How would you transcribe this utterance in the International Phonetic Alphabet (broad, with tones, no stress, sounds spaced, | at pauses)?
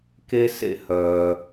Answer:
k e˥ s ḛ˥ h œː˨